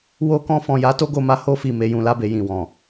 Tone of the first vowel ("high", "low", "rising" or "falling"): high